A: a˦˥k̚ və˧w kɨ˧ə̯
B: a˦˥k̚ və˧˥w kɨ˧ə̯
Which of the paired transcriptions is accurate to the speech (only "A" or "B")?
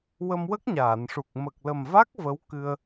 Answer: B